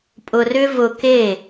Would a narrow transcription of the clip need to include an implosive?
no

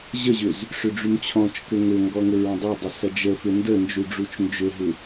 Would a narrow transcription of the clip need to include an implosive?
no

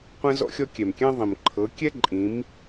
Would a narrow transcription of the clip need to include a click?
yes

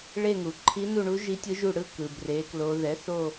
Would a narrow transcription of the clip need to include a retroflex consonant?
yes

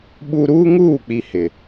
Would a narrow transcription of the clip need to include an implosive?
yes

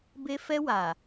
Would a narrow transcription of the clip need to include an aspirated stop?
no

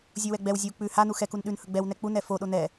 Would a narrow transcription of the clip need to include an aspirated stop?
no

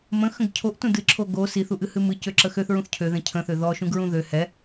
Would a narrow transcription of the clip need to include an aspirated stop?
yes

